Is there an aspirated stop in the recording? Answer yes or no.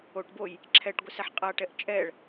yes